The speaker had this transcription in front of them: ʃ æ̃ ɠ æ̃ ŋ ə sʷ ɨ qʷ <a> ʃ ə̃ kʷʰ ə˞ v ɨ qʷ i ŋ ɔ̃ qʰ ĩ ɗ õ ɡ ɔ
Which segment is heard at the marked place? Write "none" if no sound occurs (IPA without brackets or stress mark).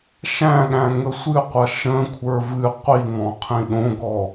ʌ